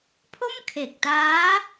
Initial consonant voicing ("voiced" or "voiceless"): voiceless